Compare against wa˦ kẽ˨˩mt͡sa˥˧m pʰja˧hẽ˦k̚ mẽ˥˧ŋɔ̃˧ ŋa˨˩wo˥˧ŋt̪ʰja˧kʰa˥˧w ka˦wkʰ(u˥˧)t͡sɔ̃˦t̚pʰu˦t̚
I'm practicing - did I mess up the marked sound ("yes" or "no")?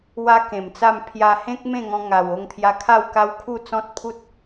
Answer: no